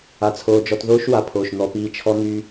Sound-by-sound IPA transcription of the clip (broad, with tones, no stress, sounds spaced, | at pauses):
a˧ t͡sʰ oː˧ d͡ʒ ɔ˧ t ð oː˦ ʃ w a˨ pʰ oː˨ ʃ n̪ ɔ˨ p iː˨ t͡ʃʰ ɔ˧ n̪ y˧